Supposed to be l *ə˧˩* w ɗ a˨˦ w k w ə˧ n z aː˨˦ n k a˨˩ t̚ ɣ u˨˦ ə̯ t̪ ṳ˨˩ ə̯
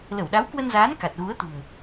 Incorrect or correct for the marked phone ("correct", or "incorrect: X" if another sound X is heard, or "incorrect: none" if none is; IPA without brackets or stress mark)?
correct